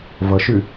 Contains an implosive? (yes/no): no